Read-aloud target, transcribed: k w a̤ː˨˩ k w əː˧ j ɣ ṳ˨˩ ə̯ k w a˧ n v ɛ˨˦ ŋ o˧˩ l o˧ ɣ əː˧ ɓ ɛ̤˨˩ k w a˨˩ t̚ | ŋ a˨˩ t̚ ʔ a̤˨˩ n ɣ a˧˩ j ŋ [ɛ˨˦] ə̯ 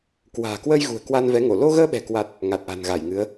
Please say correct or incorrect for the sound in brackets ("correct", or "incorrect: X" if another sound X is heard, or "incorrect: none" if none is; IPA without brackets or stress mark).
incorrect: ɨ˨˦